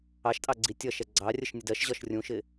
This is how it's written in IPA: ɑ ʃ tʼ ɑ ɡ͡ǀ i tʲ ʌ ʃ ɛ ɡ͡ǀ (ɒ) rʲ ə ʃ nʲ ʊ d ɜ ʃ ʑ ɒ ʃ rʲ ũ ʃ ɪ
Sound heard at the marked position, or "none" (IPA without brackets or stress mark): ɑ